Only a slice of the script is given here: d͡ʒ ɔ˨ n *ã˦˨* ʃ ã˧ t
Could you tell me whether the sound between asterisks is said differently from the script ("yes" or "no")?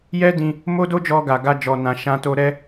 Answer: yes